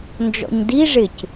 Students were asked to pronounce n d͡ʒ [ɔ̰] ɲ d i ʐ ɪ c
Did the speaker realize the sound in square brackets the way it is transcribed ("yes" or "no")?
yes